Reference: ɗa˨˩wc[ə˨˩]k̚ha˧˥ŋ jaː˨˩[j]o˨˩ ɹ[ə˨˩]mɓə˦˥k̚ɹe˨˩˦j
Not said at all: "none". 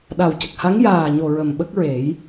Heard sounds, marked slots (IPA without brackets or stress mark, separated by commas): ə˨˩, ɲ, ə˨˩